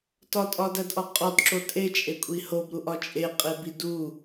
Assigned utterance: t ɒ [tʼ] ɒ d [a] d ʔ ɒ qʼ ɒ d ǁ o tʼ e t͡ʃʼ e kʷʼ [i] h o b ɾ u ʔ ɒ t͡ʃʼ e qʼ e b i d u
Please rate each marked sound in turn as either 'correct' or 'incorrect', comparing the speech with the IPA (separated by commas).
correct, incorrect, correct